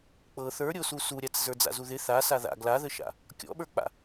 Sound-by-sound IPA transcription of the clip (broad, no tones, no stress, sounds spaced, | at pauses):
k͡p ɤ θ ə˞ ɾʲ o s u s u ɾʲ a t͡s z ə˞ d͡z a̰ z u ð ɪ θ a s a ð a̰ ɡ l a ð ə ʃ a̰ | kʲ ɔ̰ ɓ ə˞ k͡p a̰